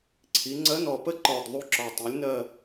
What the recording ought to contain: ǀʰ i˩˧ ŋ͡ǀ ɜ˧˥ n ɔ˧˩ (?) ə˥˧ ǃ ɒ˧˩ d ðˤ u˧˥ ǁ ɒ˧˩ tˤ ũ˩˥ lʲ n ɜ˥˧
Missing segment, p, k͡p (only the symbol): p